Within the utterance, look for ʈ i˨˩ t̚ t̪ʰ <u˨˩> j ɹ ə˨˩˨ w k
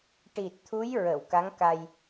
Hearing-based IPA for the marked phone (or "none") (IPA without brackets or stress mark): u˧˥